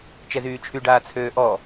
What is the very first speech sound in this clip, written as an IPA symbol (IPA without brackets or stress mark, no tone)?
t͡ʃ